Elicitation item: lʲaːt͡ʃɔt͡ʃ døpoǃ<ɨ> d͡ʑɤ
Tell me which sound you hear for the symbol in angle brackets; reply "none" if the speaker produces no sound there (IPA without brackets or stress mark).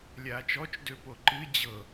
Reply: ɨ